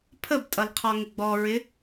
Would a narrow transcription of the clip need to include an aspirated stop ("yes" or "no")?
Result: yes